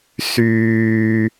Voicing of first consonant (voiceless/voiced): voiceless